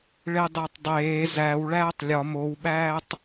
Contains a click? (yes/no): no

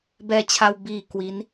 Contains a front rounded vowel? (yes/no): no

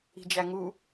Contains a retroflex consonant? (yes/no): no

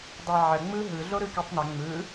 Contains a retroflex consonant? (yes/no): no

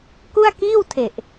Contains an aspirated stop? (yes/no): yes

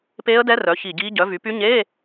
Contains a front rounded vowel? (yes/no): yes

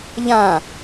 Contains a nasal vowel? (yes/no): yes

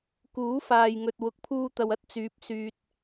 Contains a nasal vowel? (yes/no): no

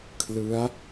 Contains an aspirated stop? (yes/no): yes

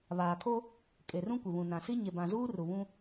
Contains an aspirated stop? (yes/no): yes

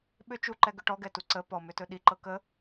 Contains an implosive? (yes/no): yes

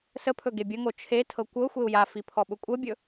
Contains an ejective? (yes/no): yes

